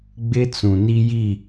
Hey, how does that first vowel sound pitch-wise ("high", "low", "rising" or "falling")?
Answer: high